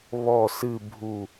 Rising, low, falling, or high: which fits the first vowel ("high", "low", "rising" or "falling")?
falling